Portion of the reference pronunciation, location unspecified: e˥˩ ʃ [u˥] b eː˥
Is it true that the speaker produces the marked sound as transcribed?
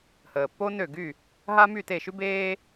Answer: no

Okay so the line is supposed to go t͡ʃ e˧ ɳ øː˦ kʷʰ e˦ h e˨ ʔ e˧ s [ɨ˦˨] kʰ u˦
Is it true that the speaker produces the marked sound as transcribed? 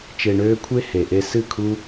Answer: yes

